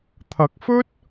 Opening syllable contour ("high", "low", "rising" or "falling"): rising